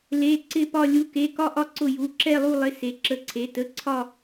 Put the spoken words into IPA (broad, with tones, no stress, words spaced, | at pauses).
le˧˥˧ǀɪ˥˧ pɒ˥˧lʲu˧˥˧ke˧˥˧ kɒ˥˧ʔɒ˥˧ ǀʊ˥˧ju˧˥˧ ǁɛ˥˧lˠu˥˧lˠɪ˧˥˧ se˧˥˧ǁə˥˧ǀʰe˧˥˧ tə˧˥˧ǀʰɒ˥˧